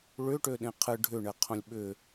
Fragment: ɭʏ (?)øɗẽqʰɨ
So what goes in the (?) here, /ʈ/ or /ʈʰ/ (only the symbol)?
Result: ʈ